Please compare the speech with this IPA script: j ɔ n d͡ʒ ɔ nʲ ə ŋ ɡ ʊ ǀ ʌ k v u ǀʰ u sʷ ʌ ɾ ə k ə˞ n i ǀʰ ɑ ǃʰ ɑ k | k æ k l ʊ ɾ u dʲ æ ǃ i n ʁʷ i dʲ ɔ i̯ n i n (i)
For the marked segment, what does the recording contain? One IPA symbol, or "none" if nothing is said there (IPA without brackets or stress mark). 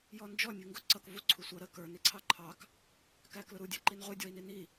i